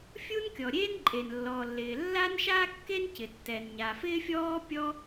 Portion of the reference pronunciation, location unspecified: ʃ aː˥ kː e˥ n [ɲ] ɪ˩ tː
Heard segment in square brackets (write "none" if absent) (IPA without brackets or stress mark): c